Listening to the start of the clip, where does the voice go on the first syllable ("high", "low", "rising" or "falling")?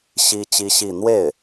high